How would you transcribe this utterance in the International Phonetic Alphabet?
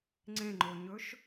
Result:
ŋ͡ǀ ẽ ŋ͡ǃ o ɲ ɵ ʃ

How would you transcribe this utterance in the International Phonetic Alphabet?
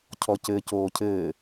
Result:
cʰ ɔ c ɘ c oː cʰ ɘː

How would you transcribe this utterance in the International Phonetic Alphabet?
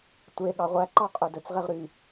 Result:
tʷ e ɠ ɑ ʁʷ æ ǃ ɑ qʼ œ d ɵ t͡s ʁ e ʁ ɾ y

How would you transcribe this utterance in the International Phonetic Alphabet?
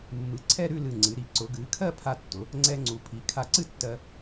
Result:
mː ɨ˩˧ ǀʰ ɛ˥˧ ɾ ʉ˥˧ l ɨ˧˩ ŋ͡ǀ ɨ˩˧ ɾ i˧˩ ǀ ʊ˩˧ ɡ ɨː˩˧ kʰ ɜ˥˧ pʰ a˧ tː ʊ˩˧ | ŋ͡ǀ ɛ˧ ŋ͡ǀ u˩˧ pʰ i˩˧ kʰ a˧˩ ǀ ɨ˥˧ tː ɜ˧

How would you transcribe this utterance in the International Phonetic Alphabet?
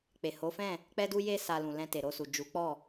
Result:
k͡p e˨ h o˨˦ f ɛ̃˦˨ | k͡p ɛ˦ d u˦ j e˦ s a˧ l ũ˨ l ɛ̃˧ t e˨ ɾ o˧ s u˨ d͡ʒ u˨˦ k͡p ɔ˦˨

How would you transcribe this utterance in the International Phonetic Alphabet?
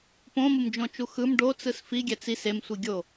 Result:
p õ m ɯ m d͡ʒ õ t͡ʃ u x ɯ m ɖ o t͡s ɯ s f i ɡʲ ɛ t͡s i s e m sʷ i ɡʲ o

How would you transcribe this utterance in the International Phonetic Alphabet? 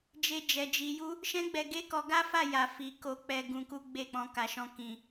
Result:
d͡ʒ e˦ d͡ʒ ɛ˧ d͡ʒ i˧ j u˦ | ʃ ɛ̃˦ ɡ͡b ɛ˧ ɡ e˦ k ɔ˧ ɡ a˦ f a˦˨ j a˨ f i˨ k o˧ k͡p ɛ˧ ɡ ũ˧ k u˦ ɡ͡b e˦˨ k͡p ɔ̃˧ k a˧ ʃ ɔ̃˦ k ĩ˧

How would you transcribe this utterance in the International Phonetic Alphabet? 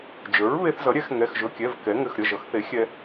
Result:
d͡ʒ ə˞˩˥ ɹ β e˧ θ z ʌ˩˥ ɾʲ ɛ˩˥ x ŋ ɛ˩˧˩ x ʒ ɵ˩˧˩ kʲ ɛ˩˧˩ v k ɛ˩˥ ŋ ɘ˩˧˩ x ɾʲ ʌ˩˧˩ ʒ ʌ˩˥ x θ e˩˥ xʲ ɛ˧

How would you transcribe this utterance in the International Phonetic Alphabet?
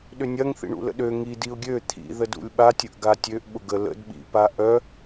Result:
ɗ ʏ nʲ ɐ ŋ θ ḭ ɳ ṵ l ə̰ ɗ ø ŋ i d i ʊ̯ ɡʲ ø t̪ʰ ḭ ð ə d ṵ lʲ ɓ a tʲ ə ʔ ɡ a tʲ ø ʔ ɓ ʊ ɡ ə l ə̰ d ɓ ḭ p a ʔ œ

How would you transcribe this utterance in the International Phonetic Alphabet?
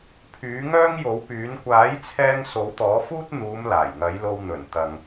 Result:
pʰ yː˨˥ ŋ œː˥ ŋ j o˨˥ w p yː˨˥ n kʷ aː˨˥ j t͡sʰ ɛː˧ ŋ s o˨˥ w t̪ ɔː˨˥ f uː˥ t̚ n̪ uː˨˧ m l aː˨˩ j ŋ ɐ˨˥ j l o˧ w n̪ ɵ˨˩ n t̪ ɐ˨ ŋ

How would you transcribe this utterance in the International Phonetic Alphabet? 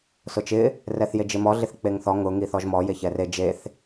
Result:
s ʊ t͡ʃ ɪ | r ɛ θ j e d͡ʒ ɪ m ɔ ɮ ɪ θ k͡p e ŋ θ ɔ ŋ ʊ ŋ i θ ɔ ʒ m ɔ j e ç ɛ r e d͡ʒ e θ

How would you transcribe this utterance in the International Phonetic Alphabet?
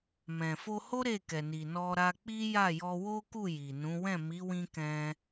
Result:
m ɛ̃˨ f o˧ h o˦ ɾ e˦˨ k ɛ˨ n i˨ n ɔ˧ ɾ a˧ k͡p i˦ j a˦˨ j ɔ˧ w o˦ k u˦˨ j i˨ n ũ˨˦ w ɛ̃˦˨ m i˨˦ w ĩ˧ k ɛ̃˧

